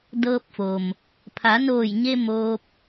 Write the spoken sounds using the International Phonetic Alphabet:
dɤː˧p̚fo˩m | pʰa˩˧noː˧˩jɲe˧ moː˧p̚

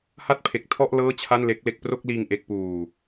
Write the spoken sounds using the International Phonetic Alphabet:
ha˥˩t̚pʰe˨˩k̚tʰɔ˥˩ʔ lɤː˥˩t͡ɕʰa˥˩nle˦˥k̚le˥˩k̚ pro˥˩k̚liː˧ŋ ʔe˦˥k̚ puː˨˩

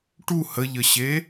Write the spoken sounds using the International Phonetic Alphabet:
ʈu həʎəɕe

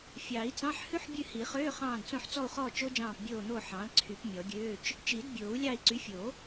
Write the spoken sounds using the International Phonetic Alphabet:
fʲɑ˨˩˦i̯t͡sɑ̃˧˥˧ħ hʉ˦˥ħbʲʉ˦˨hi˨˩˦χøː˧˥˧ χɑ̃ː˦˨dt͡sõ˦˨ħ t͡sɔ˦˨u̯χɔː˦˨ t͡ʃo˦˥d͡ʒɑ̃ː˦˨p bʲoː˦˨n̪o˦˨ħɑ̃ː˩˥l ǀʰy˨˩˦p mʲɔ˨˩˦ɡʲøː˧˥˧t͡ʃ | t͡ʃi˨˩˦dbʲoː˨˩˦u̯lʲɑ˦˨i̯ ǀy˩˥fʲo˨˩˦

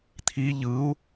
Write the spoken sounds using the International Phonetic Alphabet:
t̪ʰi ʎɯu̯

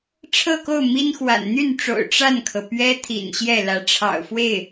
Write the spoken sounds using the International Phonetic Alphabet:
ʈ͡ʂʰɤ˥˧ko˥˩ʊ̯ mi˥nxwa̰˨˩n n̪y˥˩nʈ͡ʂo̰˨˩ʊ̯ ʈ͡ʂa˥˩nkʰɤ˩ pɥɛ˥ t̪ʰḭ˨˩nɕjɛ˥˩ lä˧˥ʈ͡ʂʰɑ̰˨˩ʊ̯fwe˥˩ɪ̯

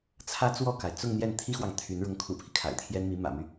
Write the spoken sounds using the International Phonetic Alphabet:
t͡sʰä˥t͡swɔ˥˩ka˩ɪ̯ t͡sʊ˥˧ŋ n̪jɛ˥˩nt̪ʰi˥xwɑ˨ŋ t̪ʰy˧˥n ɻʊ˧˥ŋkʰṵ˨˩pʰi˦ kʰa̰˨˩ɪ̯t̪ʰjɛ˥n mi˧˥mä̰˨˩my˦

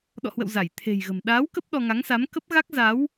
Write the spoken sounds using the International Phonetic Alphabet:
ɗɔ̰˧˨hwə̰˧˨w za˧˩j t̪ʰe̤˨˩jɣə̤˨˩m ɗaː˨˦w kə˦˥p̚ ɗɔ˧ ŋa˨˦ŋsa˨˦m kə˦˥p̚ɣa˦˥k̚ za˨˦w

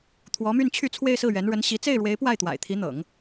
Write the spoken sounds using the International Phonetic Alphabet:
t̪ʰwɔ˧˥my˥˧n t͡ɕʰy˥˧t͡sʰwe˥˧ɪ̯sɹ̩˥˩ɥɛ˧˥n ɻə˧˥nɕi˧˥ t͡se˥˩ɪ̯ɻwe˧˥ɪ̯ pwa˥˩ɪ̯t̪wa̰˨˩ɪ̯t̪ʰi˧˥n̪ɤ̰˨˩˦ŋ

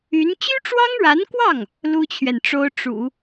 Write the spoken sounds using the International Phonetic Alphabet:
y˧˥n t͡ɕy˥ʈ͡ʂwɑ˥ŋɻa˧˥nkwɑ˥˩ŋ | lu˥t͡ɕʰɥɛ˨nʈ͡ʂo˥ʊ̯ ʈ͡ʂṵ˨˩˦

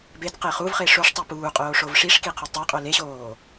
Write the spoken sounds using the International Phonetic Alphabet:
bed qeχuvχe ʂoʂtˤu puːqʼoː ʂovʂiʂki qʰodtˤæqʼo leɕoː

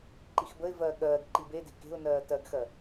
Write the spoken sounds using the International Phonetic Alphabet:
ǃixbəɪ̯vɜː ɠɜːɡ ǃibede̤ ke̤ʊ̯nɜː tɜɡxɜ

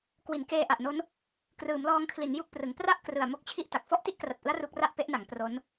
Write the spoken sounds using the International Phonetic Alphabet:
kwi˩˦nkeː˧ʔa˨˩ʔno˦˥n | krɯː˩˦mlɔː˧ŋkʰli˩˦n ju˥˩k̚prɯ˩˦ŋ pra˥˩ʔkrɯ˨˩a̯ mo˥˩k̚t͡ɕʰi˥˩ʔta˨˩k̚ fɔ˥˩ʔti˥˩ʔkra˨˩t̚ʔɯ˦˥a̯ ru˦˥k̚ra˥˩ʔpe˥˩ʔna˩˦ŋ pro˦˥n

